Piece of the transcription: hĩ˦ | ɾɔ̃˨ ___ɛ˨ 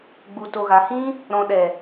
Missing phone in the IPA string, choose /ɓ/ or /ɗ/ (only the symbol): ɗ